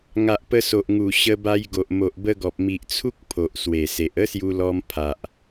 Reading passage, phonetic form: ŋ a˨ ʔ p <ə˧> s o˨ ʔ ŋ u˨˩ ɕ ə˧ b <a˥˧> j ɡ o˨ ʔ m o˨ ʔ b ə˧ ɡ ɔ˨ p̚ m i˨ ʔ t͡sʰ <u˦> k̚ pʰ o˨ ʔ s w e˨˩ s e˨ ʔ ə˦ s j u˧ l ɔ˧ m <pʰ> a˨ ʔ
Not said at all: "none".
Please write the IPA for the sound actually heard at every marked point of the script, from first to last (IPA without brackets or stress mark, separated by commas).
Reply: ə˧, a˧, u˦, pʰ